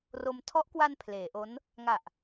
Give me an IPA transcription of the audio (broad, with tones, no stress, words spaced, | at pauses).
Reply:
ro˧m tʰɔ˦˥ʔkwa˧n pʰleː˩˦ʔo˦˥n | ŋa˨˩ʔ